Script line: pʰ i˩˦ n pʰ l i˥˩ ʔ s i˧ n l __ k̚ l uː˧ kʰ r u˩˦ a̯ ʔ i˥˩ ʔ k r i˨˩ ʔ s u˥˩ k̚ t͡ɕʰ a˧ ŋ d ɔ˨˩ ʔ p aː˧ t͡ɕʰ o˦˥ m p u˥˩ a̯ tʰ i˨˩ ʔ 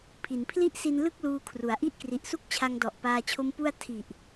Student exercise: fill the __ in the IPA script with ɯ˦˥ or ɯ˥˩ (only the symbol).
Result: ɯ˥˩